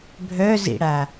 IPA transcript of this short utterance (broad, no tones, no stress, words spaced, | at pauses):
bʱœzḭɽa